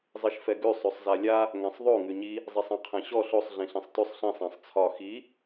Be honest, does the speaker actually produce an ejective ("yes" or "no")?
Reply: no